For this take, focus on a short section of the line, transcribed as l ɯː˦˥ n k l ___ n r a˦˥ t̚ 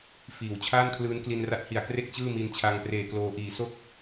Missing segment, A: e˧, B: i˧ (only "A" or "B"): B